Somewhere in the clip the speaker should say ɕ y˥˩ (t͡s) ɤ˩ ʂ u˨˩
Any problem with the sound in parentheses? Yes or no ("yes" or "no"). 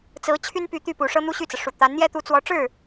no